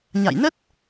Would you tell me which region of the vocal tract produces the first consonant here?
palate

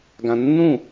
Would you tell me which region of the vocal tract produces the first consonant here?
velum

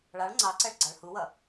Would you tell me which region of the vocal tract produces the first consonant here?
retroflex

